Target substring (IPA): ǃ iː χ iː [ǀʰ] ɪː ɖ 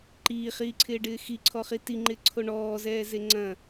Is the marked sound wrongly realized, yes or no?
no